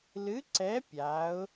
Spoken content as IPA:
l ɨ˨˥ ǀ ɛ˨˥ pʲ a˩˧ ʊ̯

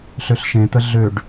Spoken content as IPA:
ɬ ø ɬ ʃ ẽ t̪ ə ɮ ø ɖ

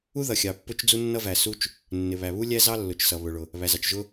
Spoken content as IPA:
u˥ ð ʌ˩ xʲ ɑ˩ pː ʊ˥ t͡ʃ d͡z u˥ nː ʌ˥ v æ˩ s u˥ t͡ʃ | nː ɪ˩ β æ˩ β u˥ lʲ æ˥ z ɑ˥ lː ʊ˩ t͡ʃ s ʌ˩ β ʊ˩ ɭ ʊ˩ | β æ˩ z ɑ˩ t͡ʃ ʒ ʊ˥

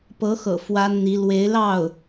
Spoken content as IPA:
p ɤ˧˥ x ɤ̰˨˩ f w a˥ n n̪ i˧˥ l w e˧˥ ɪ̯ l ɑ˥˩ ʊ̯

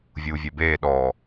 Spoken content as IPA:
vʲ uː vʲ ɛ b eː ɗ ɔ

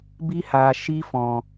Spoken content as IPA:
b i˦ h aː˨ ʃ i˦ f ɔ̃˨

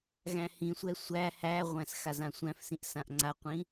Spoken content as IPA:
ɣ æ̃ h ĩ sʷ ɛ sʷ æ h æ ʁʷ æ̃ s x a z ã sʷ æ̃ f s ĩ ʔ s ã ʔ ŋ͡ǀ a qʷ ĩ

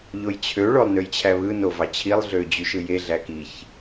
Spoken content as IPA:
ʎ o j t͡ɕʰ ø ɭ o lˠ n ø j t͡ɕʰ æ β ɯ n o v ɑ t͡ɕʰ i lˠ ɮ ø d͡ʑ y ʃ ɯ j e ɮ æ k i ç

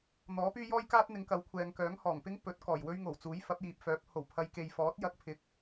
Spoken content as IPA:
n̪ ɔː˨˥ p yː˥ j ɔː˥ j k aː˥ t̚ n̪ ɪ˨˧ ŋ k ɐ˨˥ w kʷʰ ɛː˨ ŋ k œː˨˥ ŋ h ɔː˨˩ ŋ p ɪ˥ ŋ p ɵ˨˥ t̚ k ɔː˨˩ j w ɵ˥ ɥ ŋ o˨˩ w t͡s uː˨˥ j f ɐ˨˥ p̚ j iː˨ p̚ f œː˨˥ p̚ h o˨˩ w pʰ ɐ˨˧ j k e˨ j f ɔː˨˥ t̚ j ɐ˥ k̚ pʰ ɪ˧ k̚

